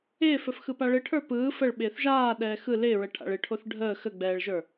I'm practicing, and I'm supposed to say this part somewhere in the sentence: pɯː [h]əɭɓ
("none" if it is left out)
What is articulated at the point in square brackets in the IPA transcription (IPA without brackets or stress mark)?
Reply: f